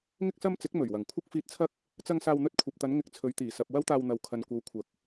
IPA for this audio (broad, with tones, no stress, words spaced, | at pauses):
ŋɪ˥k̚sɐ˥mt͡sɪ˨˥k̚ mɵ˨˩ɥwɐ˨˩ŋ kʷʰɐ˥k̚fiː˧t̚t͡sʰɐ˥k̚ | t͡sɐ˧ŋ saː˧wn̪ɵ˥t̚ kʷʰɐ˨p̚t̪ɐ˨˧n ŋɪ˧k̚t͡sʰɵ˨˧ɥt̪iː˨˩ sɐ˨p̚ wɐ˥wt̪aː˧wn̪ɐ˨w kʰɐ˨n kʷɐ˨˧wkʷʰɐ˨˥k̚